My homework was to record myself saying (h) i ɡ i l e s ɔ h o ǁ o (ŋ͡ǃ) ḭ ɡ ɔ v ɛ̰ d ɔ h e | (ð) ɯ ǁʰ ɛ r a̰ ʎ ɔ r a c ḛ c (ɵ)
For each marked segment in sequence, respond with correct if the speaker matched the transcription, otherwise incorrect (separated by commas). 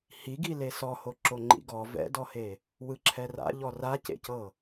correct, correct, incorrect, incorrect